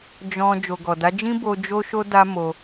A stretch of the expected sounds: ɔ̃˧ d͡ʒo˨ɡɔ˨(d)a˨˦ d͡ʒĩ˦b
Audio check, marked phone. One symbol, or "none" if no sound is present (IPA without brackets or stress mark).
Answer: d